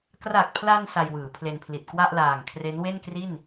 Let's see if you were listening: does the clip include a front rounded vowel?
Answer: no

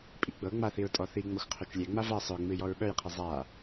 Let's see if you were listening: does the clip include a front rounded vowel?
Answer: yes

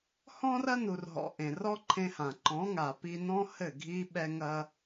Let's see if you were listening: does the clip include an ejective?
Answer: no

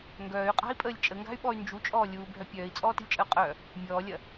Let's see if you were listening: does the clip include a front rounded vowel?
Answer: yes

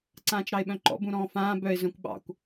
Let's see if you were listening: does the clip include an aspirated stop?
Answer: no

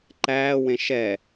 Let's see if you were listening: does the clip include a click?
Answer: yes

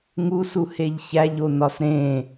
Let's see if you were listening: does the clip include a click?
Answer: no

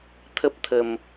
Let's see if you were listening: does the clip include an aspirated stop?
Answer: yes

